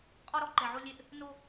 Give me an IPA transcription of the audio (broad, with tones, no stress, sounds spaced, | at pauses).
qʼ ɔ˦ ɾ ɔ˦ ǃ ɛ˨ ʕ o˦ lʲ e˦ ʔ | n o˦